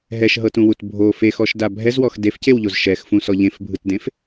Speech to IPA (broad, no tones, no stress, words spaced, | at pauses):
ɦɛʃɦɤtũwut bʱo fexɔʃda bʱɛzwɔx defcewʎoz ʃɛxfũsɔ ʎẽfbʱɯtdẽf